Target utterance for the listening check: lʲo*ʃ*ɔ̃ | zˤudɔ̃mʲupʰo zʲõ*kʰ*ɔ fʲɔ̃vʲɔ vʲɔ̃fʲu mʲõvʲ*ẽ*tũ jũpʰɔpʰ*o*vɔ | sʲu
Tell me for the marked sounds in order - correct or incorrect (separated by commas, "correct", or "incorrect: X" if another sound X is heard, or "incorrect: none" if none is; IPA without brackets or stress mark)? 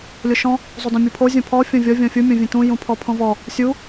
correct, incorrect: pʰ, correct, incorrect: õ